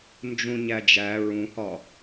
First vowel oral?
no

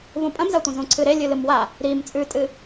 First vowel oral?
no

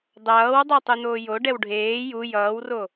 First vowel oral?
yes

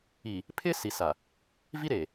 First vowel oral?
yes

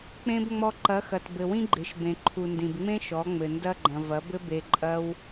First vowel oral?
no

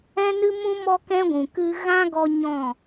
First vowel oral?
no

